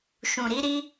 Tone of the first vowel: low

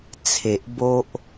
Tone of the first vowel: low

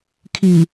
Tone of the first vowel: low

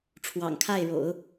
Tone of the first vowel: low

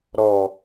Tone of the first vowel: low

